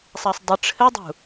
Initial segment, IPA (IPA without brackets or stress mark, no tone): sˤ